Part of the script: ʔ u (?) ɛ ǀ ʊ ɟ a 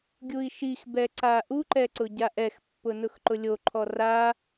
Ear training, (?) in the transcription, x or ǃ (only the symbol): ǃ